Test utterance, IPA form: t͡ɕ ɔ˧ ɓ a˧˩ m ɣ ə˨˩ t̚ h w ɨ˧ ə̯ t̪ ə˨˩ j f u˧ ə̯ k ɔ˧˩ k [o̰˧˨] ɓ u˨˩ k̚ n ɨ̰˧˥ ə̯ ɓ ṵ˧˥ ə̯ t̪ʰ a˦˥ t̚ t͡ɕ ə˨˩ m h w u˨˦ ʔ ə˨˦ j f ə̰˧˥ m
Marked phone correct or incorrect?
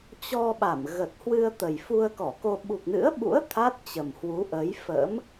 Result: incorrect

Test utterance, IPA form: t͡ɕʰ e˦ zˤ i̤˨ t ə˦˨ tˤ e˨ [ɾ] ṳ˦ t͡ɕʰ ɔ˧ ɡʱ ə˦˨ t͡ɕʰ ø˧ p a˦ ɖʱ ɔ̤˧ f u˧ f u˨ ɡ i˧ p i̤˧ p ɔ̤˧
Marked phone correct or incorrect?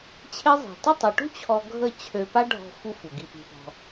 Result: incorrect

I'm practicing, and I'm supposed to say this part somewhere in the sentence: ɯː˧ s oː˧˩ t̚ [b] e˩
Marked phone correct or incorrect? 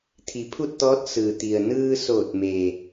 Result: incorrect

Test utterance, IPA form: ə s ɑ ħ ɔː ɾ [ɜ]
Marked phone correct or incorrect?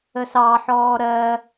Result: correct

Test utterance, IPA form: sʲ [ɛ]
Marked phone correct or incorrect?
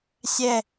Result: correct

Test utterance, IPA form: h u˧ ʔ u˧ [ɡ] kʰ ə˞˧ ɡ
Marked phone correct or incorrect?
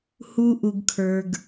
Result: correct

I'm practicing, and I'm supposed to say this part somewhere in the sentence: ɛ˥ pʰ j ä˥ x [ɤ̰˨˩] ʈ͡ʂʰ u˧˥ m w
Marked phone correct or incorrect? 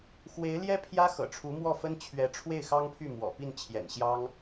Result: correct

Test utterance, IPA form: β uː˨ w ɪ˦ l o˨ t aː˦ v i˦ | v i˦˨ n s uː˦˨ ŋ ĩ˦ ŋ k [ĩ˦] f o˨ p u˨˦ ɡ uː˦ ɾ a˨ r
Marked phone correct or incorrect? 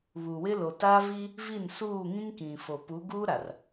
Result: incorrect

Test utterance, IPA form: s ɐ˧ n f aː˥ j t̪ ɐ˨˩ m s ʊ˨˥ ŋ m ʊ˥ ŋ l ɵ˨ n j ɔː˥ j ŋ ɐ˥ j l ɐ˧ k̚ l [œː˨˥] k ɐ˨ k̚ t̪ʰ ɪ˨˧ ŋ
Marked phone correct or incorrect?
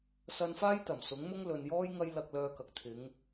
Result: incorrect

